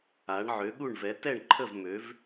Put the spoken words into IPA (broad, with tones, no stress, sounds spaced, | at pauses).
a˧˥ ɳ ʕ ø˧˥ ɠ u˥˧ ɳ v ɛ˧˥ t ɛ˥˧ ɳ ǃʰ ə˥˧ v m ø˧˥ v